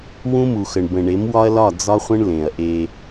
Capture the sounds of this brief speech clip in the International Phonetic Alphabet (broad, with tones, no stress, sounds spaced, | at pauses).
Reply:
w ũ˦ m u˨ x ə˨ ɳ b ə̃˨ ɳ e˨˦ m w ɒ˦ ɐ̯ l ɒ˦˨ d͡z ɒ˦ χʷ ə̃˦ ɳ l ẽ˨ ɐ̯ ʔ e˦